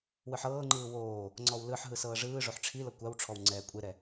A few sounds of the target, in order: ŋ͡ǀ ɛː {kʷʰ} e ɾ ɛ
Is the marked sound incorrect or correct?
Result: incorrect: kʷʼ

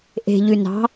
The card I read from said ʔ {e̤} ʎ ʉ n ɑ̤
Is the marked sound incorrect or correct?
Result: correct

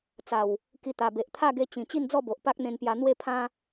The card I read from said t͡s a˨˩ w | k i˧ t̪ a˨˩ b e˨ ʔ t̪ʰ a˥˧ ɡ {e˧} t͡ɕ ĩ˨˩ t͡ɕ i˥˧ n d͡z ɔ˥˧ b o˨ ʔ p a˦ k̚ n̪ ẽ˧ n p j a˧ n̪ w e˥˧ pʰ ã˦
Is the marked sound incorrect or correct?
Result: correct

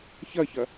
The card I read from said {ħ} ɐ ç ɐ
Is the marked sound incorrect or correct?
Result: incorrect: ç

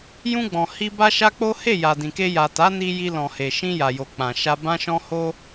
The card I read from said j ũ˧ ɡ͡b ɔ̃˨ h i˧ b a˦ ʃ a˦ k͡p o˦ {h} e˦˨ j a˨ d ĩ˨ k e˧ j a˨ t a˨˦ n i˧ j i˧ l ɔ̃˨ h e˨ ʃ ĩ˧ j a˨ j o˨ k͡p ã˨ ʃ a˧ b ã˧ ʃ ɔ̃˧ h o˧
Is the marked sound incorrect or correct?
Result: correct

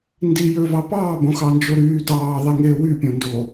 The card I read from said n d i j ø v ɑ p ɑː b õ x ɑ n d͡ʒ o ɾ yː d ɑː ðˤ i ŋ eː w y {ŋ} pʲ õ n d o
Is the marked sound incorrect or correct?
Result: incorrect: none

